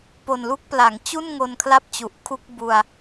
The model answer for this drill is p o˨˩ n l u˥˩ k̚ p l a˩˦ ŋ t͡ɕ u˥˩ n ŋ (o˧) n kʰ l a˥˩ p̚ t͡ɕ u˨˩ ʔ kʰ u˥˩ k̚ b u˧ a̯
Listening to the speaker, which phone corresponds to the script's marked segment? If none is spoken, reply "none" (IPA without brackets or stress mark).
o˧